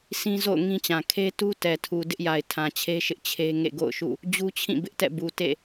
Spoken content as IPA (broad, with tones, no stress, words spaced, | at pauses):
sĩ˦zo̰˦˨ʊ̯ ŋĩ˦t͡ɕã˨ kʰe˦tu˦ tɛ˨tʰu˨ dɪ˦ʔja˨ɪ̯ tʰã˨t͡ɕʰe˦ʃɪ˦ʔ t͡ɕʰe˦ ŋḛ˦˨ɡo̰˦˨ʊ̯ʃṵ˦˨ | d͡ʑu˦t͡ɕʰĩ˦˨bɪ˦ʔtɛ̰˦˨ bu˨tḛ˦˨